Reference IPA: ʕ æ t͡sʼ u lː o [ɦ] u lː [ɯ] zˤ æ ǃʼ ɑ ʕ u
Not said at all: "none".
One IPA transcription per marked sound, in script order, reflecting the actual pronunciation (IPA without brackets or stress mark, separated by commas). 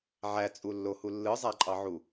h, ɯ